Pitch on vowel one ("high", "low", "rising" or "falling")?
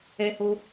high